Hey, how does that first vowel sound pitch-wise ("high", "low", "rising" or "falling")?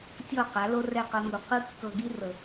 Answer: falling